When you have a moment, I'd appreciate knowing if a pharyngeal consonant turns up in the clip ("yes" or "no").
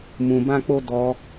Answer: no